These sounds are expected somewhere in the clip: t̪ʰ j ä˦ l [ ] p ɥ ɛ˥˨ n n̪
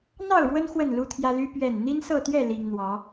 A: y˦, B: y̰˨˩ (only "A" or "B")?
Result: A